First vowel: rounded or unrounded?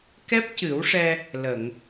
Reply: unrounded